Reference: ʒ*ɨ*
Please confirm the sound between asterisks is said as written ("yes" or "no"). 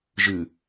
yes